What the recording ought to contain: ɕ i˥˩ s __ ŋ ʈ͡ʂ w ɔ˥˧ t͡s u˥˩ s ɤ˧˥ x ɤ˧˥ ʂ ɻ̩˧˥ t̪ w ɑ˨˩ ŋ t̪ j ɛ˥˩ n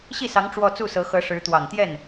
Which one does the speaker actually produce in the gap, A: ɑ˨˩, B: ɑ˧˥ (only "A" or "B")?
B